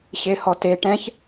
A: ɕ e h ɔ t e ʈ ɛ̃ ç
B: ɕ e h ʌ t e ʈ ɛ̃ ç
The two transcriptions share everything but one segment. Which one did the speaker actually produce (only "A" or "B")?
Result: A